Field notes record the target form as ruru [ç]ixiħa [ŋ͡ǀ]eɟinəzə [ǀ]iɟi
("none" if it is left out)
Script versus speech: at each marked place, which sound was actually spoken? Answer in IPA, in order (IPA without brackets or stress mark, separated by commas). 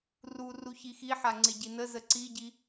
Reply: ç, ŋ͡ǀ, ǀ